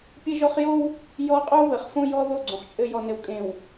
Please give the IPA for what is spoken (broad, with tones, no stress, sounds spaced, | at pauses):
pʲ ɘ˦ ʒ ɔ˦ χ j o˦ w | j ɔ˦ qʼ o˦ β ɘ˨˦ χ f õ˦ j ɔ˦ ð o˦˨ ɡ͡ǀ õ˨ χ t͡ʃʼ ɘ˨ j ɔ˨ n ɘ˨ w kʼ ẽ˨ w